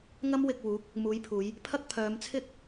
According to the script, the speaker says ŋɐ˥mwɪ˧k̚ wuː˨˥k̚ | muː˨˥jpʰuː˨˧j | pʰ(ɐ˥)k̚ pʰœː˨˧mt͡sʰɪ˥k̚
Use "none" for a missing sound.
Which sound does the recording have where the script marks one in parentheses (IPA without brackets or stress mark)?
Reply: ɐ˥